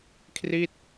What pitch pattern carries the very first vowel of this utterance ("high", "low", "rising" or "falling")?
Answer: falling